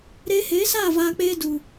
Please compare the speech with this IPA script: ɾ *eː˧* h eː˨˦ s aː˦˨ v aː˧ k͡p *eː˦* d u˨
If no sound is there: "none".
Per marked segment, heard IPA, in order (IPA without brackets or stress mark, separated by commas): eː˧, eː˦